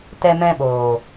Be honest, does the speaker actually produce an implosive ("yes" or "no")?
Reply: yes